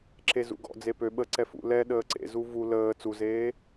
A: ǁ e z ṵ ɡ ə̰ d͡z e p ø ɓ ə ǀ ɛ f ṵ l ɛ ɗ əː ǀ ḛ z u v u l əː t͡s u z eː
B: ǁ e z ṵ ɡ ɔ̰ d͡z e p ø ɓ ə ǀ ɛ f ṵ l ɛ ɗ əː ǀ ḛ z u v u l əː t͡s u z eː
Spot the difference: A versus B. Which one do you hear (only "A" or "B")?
B